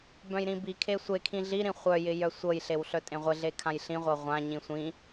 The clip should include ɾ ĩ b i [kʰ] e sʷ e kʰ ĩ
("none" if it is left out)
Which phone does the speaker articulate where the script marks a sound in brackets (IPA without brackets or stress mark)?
kʰ